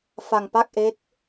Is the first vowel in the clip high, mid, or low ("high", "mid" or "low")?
low